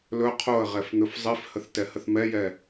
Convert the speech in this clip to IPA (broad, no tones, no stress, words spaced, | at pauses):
lɵ qʰoə̯ʁɛf n̪ɵfzˤifhəθ tɛhəθmɛjɛ